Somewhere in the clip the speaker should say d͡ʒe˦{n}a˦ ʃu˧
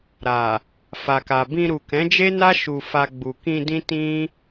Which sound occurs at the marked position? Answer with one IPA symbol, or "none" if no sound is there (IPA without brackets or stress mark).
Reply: n